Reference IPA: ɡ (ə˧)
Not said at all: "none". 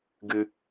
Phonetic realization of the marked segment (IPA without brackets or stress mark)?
ɨ˧